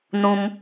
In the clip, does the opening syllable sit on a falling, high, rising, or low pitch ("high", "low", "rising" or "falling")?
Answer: high